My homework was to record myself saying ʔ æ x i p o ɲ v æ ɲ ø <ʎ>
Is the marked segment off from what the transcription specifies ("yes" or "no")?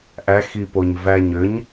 yes